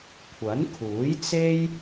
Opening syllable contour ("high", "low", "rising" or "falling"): rising